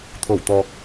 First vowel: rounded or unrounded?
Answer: rounded